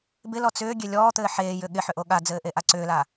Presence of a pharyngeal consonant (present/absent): present